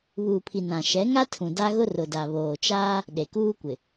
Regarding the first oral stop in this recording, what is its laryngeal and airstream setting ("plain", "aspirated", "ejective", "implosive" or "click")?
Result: aspirated